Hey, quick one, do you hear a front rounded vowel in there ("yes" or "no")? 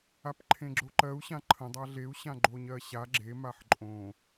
no